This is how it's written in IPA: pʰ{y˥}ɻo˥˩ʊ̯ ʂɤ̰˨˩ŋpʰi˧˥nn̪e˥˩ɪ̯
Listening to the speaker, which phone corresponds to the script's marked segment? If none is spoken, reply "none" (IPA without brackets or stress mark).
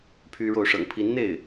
y˥